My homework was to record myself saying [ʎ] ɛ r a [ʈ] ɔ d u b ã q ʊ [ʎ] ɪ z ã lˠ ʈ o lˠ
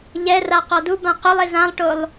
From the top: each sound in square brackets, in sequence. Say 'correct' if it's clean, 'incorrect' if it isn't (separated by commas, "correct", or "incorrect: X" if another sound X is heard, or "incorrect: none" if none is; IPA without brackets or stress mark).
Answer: correct, incorrect: q, incorrect: lˠ